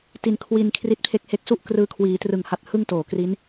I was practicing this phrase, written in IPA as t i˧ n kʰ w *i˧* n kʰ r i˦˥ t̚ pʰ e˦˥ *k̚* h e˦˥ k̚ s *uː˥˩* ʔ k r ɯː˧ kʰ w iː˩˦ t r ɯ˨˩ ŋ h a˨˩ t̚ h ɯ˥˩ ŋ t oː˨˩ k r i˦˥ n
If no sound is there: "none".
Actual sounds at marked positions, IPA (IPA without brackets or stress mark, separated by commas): i˧, k̚, u˥˩